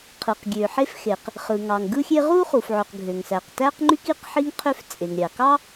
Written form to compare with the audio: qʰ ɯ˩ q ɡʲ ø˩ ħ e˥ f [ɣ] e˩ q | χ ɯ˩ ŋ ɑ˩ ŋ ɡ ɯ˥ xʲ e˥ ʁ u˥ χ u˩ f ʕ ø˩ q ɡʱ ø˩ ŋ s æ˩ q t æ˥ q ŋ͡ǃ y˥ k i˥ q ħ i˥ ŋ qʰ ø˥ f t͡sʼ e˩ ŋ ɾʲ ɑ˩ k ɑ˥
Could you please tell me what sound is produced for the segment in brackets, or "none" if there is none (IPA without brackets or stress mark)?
x